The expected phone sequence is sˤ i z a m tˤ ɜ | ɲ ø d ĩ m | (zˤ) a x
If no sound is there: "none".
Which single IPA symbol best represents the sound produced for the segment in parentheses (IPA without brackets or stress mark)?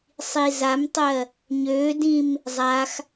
zˤ